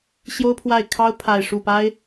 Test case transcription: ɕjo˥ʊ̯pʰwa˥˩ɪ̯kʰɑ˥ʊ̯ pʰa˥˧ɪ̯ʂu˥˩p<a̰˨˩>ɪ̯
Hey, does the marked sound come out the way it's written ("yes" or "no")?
no